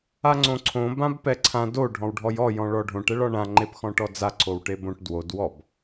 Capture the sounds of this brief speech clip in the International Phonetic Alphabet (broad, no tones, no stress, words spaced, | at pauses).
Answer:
aŋ͡ǀõǀʰõ bãbpɛǀʰã do ɖʱɔ̃wɖʱɔjɔ jɔ̃ɭɔɖʱõʈ ɛɭɒɳã ŋ͡ǃepxɔ̃ʈɔd͡za ǀowʈebõʈ dwod wɔb